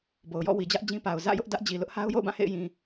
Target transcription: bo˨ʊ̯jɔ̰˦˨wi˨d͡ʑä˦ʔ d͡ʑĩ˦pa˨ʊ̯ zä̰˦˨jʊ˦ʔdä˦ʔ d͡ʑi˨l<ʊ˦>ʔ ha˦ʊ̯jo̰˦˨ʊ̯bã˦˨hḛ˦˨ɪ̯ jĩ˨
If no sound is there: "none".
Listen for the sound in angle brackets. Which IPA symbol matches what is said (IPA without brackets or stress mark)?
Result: ʊ˦